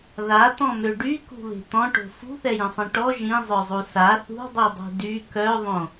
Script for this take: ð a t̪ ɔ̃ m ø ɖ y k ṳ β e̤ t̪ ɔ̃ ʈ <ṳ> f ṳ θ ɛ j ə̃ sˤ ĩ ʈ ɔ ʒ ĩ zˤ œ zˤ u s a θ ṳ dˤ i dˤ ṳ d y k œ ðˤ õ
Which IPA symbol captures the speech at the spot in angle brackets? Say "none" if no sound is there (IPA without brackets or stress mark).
o̤